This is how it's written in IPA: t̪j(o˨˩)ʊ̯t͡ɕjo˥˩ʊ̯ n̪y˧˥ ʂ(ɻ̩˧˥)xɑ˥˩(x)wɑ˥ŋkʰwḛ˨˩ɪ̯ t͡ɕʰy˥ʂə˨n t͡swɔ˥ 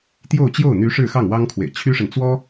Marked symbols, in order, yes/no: no, no, no

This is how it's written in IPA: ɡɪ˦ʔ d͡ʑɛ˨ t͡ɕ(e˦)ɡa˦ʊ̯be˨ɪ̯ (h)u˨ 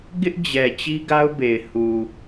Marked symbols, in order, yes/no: no, yes

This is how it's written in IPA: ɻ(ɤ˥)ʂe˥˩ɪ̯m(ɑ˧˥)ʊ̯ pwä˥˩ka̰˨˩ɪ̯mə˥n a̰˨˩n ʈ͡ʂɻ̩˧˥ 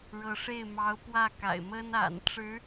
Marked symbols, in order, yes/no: no, yes

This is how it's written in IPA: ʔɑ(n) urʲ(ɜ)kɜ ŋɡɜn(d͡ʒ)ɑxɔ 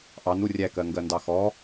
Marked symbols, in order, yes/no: yes, no, no

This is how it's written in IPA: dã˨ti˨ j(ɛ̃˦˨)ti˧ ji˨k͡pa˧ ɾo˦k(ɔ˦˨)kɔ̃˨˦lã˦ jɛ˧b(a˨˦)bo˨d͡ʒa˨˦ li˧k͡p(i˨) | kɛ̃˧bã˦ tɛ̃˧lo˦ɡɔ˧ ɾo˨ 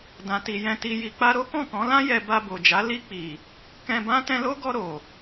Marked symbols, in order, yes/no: no, no, no, yes

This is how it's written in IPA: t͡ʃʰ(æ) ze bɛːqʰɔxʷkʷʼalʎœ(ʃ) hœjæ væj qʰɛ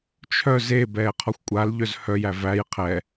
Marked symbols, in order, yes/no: no, no

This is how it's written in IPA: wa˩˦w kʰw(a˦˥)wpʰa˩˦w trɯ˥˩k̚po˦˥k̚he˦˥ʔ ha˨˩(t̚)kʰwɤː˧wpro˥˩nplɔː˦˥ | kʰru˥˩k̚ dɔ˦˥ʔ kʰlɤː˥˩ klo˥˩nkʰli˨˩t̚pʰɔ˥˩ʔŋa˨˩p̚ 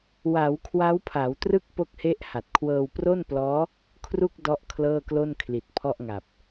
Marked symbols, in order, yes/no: yes, yes

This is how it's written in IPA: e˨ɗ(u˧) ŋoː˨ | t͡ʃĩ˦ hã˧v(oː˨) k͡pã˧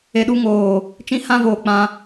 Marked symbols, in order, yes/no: yes, yes

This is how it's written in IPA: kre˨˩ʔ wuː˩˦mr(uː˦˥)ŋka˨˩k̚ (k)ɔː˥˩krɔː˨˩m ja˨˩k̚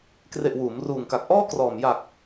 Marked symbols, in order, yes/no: no, no

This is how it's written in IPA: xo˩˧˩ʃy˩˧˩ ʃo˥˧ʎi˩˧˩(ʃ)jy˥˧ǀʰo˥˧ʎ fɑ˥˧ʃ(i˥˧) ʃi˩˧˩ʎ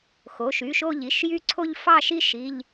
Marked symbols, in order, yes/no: yes, yes

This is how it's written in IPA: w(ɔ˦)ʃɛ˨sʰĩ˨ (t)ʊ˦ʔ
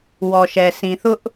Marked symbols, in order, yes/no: no, no

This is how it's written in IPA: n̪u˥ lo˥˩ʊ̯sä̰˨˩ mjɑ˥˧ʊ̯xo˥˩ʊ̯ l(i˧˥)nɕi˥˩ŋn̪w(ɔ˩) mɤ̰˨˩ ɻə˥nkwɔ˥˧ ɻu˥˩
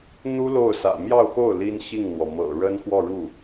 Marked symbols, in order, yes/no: no, yes

